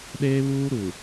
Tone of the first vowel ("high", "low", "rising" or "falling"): high